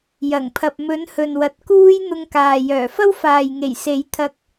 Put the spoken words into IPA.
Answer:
jɐ˨˩ŋpʰɐ˨p̚ mɵ˨˥nhɵ˨nwɐ˨t̚kuː˥j n̪ʊ˧ŋkaː˨ jœː˨˩fɐ˥wfaː˨jŋe˨˩j se˨˥j t̪ʰɐ˧k̚

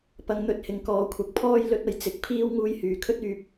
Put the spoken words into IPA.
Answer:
pɐ˨˧ŋn̪ɵ˨˥t̚hɪ˨˩ŋ kɔː˨˧kʷʰɐ˨˥k̚pʰɔː˥j lɵ˧t̚ɐ˨˩j t͡sɪ˧k̚pʰiː˥w ŋuː˧jhyː˨kʰɵ˥t̚yː˧p̚

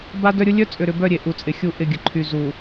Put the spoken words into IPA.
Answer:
ba˦dœ˦ɾʲʊ˦ lʲœ˦t͡sʼʏ˨ɾʏ˨bœ˦˨ ɾʲe˨ʔu˨t͡sʼɪ˨ xʲu˦˨ ʔɪ˦˨ɡʲə˨ ǃʰy˨zu˨

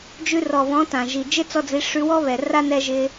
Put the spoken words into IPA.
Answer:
d͡ʒʉ˧rɔ˨βɔ̃˨˦ tã˨ʒi˨ d͡ʒɪ˦t͡sɔ˧d͡zi˨˦ ʂʉ˧wɔ˦βɛ˨ra˦ nɛ˧ʒɪ˧

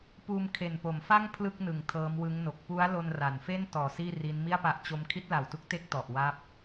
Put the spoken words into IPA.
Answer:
puː˧mkʰe˨˩npo˩˦mfa˥˩ŋ pʰlɯ˥˩k̚ nɯ˨˩ŋ tʰɤː˦˥mwɯ˦˥ŋno˨˩k̚ pu˦˥a̯lo˧n ra˩˦n fe˥˩ntɔː˨˩ siː˥˩ri˦˥n mi˥˩a̯pa˦˥ʔt͡ɕo˦˥m kʰi˦˥t̚la˨˩wtu˦˥k̚te˦˥k̚ tɔ˨˩ʔ wa˦˥p̚

